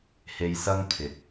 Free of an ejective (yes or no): yes